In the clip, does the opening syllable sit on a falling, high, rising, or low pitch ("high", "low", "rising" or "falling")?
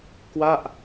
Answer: falling